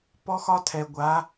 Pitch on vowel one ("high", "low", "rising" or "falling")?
high